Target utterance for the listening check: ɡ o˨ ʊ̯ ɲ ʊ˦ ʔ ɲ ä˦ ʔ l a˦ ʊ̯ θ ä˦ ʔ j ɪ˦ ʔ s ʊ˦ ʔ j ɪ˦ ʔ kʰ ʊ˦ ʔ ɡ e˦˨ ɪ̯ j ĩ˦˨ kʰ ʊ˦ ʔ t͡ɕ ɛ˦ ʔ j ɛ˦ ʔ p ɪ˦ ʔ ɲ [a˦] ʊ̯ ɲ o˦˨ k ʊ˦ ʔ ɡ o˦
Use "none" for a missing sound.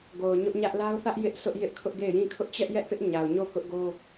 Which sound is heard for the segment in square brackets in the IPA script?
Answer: a˨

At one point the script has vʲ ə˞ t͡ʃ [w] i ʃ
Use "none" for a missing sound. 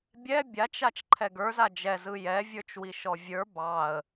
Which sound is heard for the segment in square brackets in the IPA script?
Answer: w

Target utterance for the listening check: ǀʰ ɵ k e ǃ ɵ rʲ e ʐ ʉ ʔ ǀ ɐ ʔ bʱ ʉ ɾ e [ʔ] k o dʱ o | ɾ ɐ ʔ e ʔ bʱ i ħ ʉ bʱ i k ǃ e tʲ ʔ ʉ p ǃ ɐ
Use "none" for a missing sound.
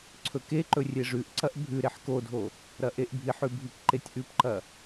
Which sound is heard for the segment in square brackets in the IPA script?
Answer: ħ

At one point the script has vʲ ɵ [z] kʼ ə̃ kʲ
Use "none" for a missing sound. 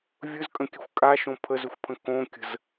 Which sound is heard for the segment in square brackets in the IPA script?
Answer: z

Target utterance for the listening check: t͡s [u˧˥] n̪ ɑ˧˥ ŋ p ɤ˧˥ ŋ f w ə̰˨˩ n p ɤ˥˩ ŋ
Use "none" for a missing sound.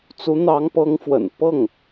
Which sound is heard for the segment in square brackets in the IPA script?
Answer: u˧˥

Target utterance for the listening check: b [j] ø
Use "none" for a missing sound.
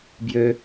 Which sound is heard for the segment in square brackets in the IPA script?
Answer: j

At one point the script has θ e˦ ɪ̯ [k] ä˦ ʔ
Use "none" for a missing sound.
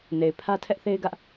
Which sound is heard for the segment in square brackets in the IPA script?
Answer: ɡ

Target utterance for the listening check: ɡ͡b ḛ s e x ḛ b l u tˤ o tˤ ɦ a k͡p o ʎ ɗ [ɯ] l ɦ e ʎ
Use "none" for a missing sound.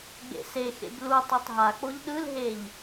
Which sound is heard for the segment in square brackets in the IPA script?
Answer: ɯ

